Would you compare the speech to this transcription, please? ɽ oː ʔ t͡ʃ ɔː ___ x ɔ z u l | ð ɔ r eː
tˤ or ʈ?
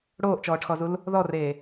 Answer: ʈ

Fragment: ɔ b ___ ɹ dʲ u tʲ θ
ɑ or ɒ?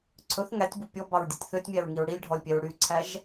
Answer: ɑ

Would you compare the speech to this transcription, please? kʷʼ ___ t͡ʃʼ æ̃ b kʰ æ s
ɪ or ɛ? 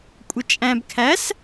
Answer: ɪ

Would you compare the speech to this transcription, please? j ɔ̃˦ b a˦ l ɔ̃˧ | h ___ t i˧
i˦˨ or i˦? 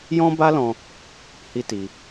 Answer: i˦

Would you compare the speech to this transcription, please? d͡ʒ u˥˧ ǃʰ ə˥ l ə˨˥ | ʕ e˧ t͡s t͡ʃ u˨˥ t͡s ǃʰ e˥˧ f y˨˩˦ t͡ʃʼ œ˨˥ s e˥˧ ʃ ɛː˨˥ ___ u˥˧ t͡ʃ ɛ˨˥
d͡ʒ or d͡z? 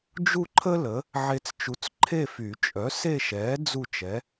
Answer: d͡z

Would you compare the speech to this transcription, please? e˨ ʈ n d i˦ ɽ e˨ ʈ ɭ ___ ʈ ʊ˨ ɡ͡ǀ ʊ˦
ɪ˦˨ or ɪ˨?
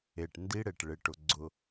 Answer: ɪ˨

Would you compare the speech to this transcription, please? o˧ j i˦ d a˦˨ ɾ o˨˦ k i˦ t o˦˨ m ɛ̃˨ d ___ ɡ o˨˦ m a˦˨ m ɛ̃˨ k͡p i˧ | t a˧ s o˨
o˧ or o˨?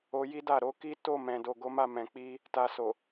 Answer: o˨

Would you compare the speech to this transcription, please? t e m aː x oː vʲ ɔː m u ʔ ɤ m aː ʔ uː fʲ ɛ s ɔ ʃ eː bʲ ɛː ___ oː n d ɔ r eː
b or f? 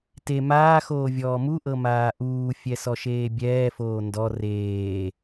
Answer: f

